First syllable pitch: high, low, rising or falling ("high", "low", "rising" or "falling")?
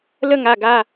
high